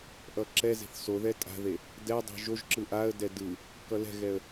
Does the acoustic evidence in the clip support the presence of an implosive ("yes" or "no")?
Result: no